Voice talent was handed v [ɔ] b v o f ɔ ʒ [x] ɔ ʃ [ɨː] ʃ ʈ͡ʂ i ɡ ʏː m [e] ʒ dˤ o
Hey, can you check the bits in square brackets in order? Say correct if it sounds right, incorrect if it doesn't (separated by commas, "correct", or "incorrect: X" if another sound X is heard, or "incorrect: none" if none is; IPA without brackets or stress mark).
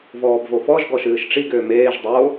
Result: incorrect: ɔː, incorrect: ɡ, correct, incorrect: eː